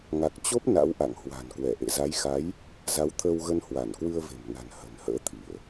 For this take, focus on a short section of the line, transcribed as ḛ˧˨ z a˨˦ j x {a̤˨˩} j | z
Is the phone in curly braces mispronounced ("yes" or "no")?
yes